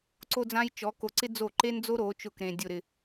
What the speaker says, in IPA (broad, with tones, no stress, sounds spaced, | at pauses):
ǀ o˥ d͡z ã˥ j t͡ʃ ɔ˧˥ k o˧˥ ǀ ɪ˥ d͡z o˥˩ ǃ e˥ n d͡z o˥ ɾ o˧˥ t͡ʃ ʊ˥˩ k ɾ ẽ˧ dʲ ʊ˥˧ ɾ ɪ˥˧